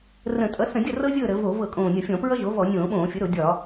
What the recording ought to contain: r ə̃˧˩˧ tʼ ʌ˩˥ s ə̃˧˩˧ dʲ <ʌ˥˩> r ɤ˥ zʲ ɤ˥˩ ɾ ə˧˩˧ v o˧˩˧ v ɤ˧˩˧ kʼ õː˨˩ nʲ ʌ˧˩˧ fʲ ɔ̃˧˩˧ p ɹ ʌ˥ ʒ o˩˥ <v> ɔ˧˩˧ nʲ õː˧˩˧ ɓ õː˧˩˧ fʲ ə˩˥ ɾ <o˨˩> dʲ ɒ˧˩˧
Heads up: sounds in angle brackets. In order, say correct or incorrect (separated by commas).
correct, correct, incorrect